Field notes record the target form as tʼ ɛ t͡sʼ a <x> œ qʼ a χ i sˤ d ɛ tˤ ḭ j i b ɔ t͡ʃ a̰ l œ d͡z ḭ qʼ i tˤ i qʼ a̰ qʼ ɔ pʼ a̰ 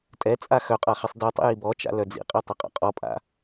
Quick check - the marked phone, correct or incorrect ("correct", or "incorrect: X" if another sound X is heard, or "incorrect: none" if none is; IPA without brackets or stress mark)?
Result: correct